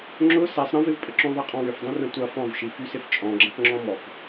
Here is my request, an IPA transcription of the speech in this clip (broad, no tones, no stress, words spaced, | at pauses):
ŋ͡ǁʊ sɛsˤ ɾə̃vɪvpʼəǁõ ðˤeqʼɔ̃wʏfdˤĩ rə̃tʷɐ fɔ̃vʃi fysɪft͡ʃʼɔ̃ɡ͡ǁɐ̃k ŋ͡ǁɔ̃mɔk